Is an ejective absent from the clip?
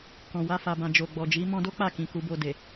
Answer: yes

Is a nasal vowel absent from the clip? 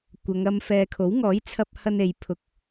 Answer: yes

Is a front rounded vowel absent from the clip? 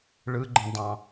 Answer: yes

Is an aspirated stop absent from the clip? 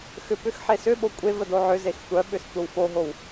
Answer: yes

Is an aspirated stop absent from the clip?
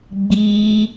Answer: yes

